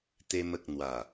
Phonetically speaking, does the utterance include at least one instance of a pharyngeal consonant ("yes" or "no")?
no